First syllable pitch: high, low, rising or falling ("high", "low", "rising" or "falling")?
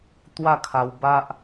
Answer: falling